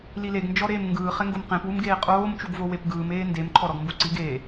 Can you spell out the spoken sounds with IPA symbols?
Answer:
l i l e ɡ n d͡ʒ ɔ ɾ eː m ŋ ɡ ɯː χ ɛ ŋ ɡ o m q ẽ p w u m ɡ eː qʼ oː m t͡ʃ u ɡ v o w e p ɡ ɯː m eː n d e m ǃʰ ɔ ɾ ɔ ɡ m b u ǀ i ɡ eː

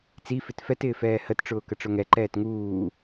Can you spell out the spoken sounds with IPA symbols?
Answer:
t͡s i f ɪ t f ɛ t ɪː f ɛː h ə t ʈ͡ʂ ʊː k ə ʈ͡ʂ ʊ ŋ ɛ ǃ ɛː t ŋ uː

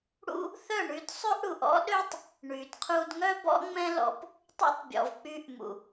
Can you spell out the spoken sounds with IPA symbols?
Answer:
ɽ ṵ˦ | θ œ˦˨ ɳ y˧ d sˤ ø˦ ʔ ɽ u˨ ʔ ɔ̰˦ ɗ ø˦ tˤ | ɳ y˨ d qʰ u˧ d ŋ œ˦ b ɔ̰˦ ŋ͡m ɛ̃˦ l ɔ̰˧ p | tˤ ṵ˧ tˤ bʲ ɔ̰˨ v k͡p y˧ ʔ m ṵ˨

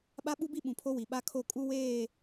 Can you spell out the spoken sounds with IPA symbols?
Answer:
ɓ a˦ ɓ u˦ b i˦ ɓ ũ˨ pʰ o˦ w i˨ ɓ a˦ kʰ o˦˨ kʼ u˦ w eː˦˨

